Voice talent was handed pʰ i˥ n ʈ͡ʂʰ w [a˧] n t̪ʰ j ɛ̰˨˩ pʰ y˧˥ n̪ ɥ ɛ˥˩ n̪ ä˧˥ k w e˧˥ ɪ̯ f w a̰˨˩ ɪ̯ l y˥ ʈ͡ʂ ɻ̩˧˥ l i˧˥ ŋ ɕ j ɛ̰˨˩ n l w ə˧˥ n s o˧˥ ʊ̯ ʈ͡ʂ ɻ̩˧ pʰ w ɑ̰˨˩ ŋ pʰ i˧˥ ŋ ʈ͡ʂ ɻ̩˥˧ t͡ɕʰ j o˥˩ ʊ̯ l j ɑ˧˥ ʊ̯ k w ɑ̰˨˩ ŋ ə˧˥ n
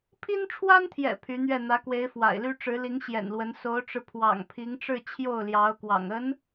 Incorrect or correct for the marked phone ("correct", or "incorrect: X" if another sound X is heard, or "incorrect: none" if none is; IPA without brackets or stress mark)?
incorrect: a˥